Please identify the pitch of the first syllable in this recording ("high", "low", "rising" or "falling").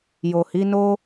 low